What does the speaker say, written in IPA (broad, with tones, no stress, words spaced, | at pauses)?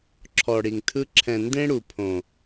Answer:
ǁʰɔ˨ɽi˨ŋtʰɯ˧ ǁʰɛ̃˨ ndẽ˦ɽu˨pʰõ˨